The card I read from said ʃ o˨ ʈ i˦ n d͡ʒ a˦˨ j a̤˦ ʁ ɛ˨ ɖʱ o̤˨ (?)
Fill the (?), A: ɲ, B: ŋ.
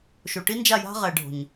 A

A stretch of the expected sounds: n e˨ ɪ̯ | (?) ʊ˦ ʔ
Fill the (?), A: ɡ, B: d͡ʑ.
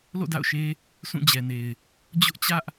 B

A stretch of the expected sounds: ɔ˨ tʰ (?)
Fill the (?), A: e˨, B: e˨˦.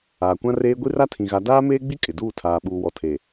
A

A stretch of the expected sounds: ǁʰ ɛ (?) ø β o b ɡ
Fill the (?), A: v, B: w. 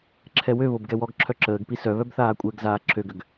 B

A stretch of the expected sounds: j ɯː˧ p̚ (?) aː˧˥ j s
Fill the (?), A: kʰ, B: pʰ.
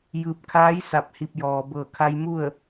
A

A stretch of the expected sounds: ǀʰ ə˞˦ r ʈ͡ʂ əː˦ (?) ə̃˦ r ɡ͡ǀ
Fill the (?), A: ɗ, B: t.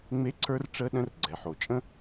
A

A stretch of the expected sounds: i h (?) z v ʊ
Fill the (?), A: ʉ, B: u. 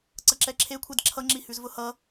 A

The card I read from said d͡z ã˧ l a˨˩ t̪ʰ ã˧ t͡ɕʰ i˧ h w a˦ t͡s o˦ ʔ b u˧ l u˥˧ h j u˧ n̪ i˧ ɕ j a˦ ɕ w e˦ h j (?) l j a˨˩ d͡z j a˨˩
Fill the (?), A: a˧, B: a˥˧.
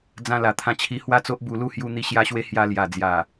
A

